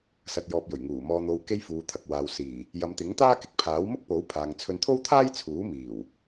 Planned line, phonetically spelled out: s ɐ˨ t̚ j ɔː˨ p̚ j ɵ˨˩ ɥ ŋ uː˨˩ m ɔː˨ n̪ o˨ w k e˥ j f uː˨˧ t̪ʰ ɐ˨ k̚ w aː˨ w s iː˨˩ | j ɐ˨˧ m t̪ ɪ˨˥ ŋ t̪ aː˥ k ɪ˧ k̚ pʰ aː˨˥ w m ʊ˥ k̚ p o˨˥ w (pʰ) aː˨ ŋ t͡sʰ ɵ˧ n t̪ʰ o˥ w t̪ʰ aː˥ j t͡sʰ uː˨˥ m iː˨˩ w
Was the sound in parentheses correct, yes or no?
yes